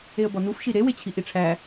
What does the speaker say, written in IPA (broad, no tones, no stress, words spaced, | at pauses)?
eə̯bɒnufʃi ɾewet͡ɕʰi ʔiʈ͡ʂʰæ